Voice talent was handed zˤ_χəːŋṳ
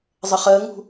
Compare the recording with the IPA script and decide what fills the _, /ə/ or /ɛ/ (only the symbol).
ə